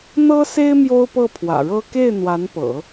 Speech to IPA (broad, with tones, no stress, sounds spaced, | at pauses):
n̪ ɤ˥ s e˥ ɪ̯ m j o˥ ʊ̯ p ɤ˥˩ pʰ w ä̰˨˩ ɻ ɤ˥ k e˥˩ ɪ̯ n̪ w a˧˥ n p ɤ̰˨˩˦